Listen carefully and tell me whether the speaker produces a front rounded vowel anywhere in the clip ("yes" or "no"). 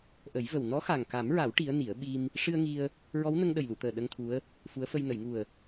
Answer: no